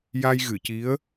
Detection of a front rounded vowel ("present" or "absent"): absent